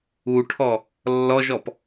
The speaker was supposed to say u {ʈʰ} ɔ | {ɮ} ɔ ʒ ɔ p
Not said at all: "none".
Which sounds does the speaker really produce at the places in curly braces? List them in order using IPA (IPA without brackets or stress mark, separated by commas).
ʈʰ, lː